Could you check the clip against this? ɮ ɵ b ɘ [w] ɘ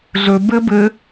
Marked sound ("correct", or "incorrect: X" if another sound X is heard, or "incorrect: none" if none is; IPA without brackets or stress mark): incorrect: b